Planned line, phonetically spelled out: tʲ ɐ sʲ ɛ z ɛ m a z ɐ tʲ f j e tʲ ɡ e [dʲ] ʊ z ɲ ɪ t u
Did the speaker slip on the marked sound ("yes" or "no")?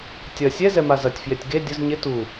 no